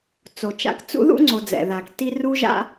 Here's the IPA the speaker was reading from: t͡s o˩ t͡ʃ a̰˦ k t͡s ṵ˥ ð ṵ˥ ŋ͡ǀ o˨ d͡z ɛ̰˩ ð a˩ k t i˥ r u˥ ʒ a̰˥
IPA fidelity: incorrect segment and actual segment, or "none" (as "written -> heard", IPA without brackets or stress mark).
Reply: none